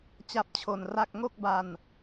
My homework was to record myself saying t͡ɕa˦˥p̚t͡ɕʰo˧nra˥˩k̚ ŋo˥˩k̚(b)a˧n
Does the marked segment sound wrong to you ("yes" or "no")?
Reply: no